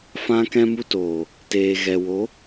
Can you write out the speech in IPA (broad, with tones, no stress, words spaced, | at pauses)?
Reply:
fã˧ kɛ̃˧mu˧toː˨ | teː˨ɣɛ˨ wo˨˦